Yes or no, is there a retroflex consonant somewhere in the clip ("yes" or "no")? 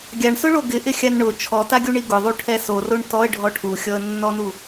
yes